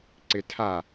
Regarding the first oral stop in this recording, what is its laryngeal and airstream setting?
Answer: click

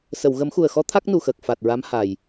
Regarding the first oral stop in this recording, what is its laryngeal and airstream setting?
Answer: aspirated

